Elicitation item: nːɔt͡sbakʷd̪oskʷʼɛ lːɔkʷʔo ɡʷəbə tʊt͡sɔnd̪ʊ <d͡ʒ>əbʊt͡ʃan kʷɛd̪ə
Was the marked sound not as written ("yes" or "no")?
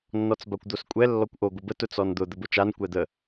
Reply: yes